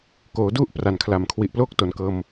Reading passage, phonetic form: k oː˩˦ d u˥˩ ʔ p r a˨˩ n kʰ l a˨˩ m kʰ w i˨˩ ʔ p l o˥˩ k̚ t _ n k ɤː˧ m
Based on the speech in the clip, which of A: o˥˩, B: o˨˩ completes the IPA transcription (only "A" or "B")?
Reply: B